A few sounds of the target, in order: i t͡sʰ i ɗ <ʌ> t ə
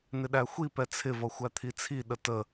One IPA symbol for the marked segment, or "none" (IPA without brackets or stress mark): ə